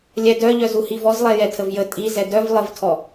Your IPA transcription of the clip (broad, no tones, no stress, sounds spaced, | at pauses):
lʲ ɛ d œ ʎ œ z u h i v ɔ z lˠ ɛ j ɛ tʰ ə v j ə tʼ i z ɛ d œ v lˠ ə v tʰ ɔ